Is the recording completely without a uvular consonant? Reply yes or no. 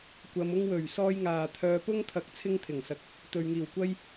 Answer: yes